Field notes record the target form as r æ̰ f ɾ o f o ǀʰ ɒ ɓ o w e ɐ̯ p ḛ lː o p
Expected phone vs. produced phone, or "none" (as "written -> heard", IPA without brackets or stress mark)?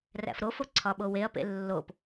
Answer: none